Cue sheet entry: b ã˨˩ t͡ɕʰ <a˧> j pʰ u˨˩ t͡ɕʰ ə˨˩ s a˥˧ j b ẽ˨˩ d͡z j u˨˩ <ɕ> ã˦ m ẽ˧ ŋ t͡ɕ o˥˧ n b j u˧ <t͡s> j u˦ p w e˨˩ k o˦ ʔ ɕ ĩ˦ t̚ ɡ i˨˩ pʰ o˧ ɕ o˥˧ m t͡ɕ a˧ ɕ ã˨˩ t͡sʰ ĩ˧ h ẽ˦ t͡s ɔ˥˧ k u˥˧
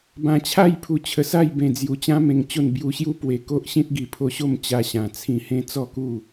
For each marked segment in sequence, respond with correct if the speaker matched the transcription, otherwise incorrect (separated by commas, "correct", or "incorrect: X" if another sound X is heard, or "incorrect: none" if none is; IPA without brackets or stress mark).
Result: incorrect: a˥˧, incorrect: t͡ɕ, incorrect: ɕ